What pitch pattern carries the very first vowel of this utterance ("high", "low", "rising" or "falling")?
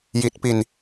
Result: low